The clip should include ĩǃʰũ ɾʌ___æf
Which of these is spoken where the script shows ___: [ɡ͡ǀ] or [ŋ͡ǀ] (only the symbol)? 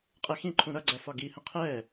ɡ͡ǀ